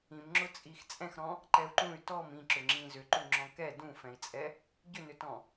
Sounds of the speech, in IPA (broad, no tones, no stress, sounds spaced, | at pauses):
ĩ m ŋ͡ǁ ʊ t͡sʼ i x t͡sʼ ɛ̃ x ɾ ɔ̃ | ǃ ɛ u̯ ǃ ũ y̯ t ɔ m ĩ ǁ ʏ ŋ͡ǁ ĩ z ʏ ǃ u ŋ͡ǁ ɔ̃ k ɛ d ũ f ɛ̃ i̯ t͡sʼ ɛ | ɟ ʏ n ʏ t ɔ̃